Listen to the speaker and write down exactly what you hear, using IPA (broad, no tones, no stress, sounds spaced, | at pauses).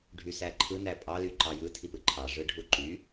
ɖʱ y s æ ǃʰ ɯ n æ pʼ ɑ l y ǃ ɑ j ɯ tʰ i p ɯ ǃʰ ɑ ʐ ɯ ɖʱ u ǃ y